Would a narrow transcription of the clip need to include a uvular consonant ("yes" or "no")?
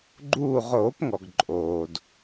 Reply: yes